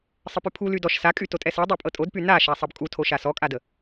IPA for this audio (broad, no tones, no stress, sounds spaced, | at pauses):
sˤ ə p y pʰ u l y d ɔ ʃ s a kʼ y t o tʼ ɛ s ɤ dˤ ɛ pʼ ɤ tʼ o d p y n a ʃ a sˤ ɤ b kʼ u tʰ o ʃ a s ɔ kʼ a d ə